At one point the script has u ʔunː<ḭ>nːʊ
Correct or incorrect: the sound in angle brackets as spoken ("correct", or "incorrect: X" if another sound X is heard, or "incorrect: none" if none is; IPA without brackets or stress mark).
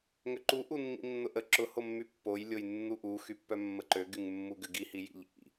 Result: correct